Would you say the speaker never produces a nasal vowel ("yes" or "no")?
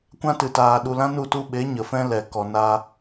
no